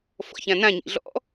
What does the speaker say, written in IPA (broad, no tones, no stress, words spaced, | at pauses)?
fɔ̰çãnãɲḭ ɮɔ̰